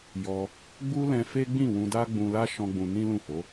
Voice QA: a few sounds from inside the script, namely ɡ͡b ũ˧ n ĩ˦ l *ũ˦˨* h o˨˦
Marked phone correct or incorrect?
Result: correct